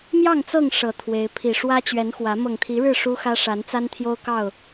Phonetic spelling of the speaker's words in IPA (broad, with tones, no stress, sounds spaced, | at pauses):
m j ɑ˥˨ ŋ t͡s ɤ˥˨ ŋ ʂ ɤ˨˩ t̪ʰ w e˨˦ ɪ̯ pʰ i˨˩ ʂ w ä˦ t͡ɕ ɥ ɛ˨˦ n x w ä˨˦ m ɤ˨˩ ŋ t̪ʰ i˨˦ ɻ ɻ̩˥˨ ʂ u˦ x ä˦ ʂ a˨˦ n t͡s a˦ n t̪ʰ j o˦ ʊ̯ k ɑ˥˨ ʊ̯